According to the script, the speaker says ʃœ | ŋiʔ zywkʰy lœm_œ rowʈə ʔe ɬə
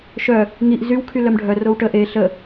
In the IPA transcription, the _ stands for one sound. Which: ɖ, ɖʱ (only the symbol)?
ɖʱ